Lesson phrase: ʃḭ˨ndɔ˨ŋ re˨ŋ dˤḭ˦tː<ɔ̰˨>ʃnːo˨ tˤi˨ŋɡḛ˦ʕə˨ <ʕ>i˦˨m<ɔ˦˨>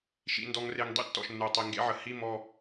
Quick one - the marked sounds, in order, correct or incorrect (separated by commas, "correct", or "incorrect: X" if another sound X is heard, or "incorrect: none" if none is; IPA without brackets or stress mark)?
correct, incorrect: h, correct